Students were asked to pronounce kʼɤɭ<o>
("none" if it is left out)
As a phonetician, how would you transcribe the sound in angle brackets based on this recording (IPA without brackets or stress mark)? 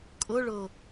ɤ